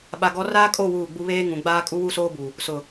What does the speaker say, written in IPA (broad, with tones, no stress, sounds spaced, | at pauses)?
ɓ a˨ ɡ ɔ˨˦ r aː˦ kʼ o˦˨ w uː˦˨ ɡ͡b u˦ β eː˦ ŋ ũ˨ ɡ͡b aː˦ kʼ u˦ w u˦ s oː˦ b u˨ | s ʊ˨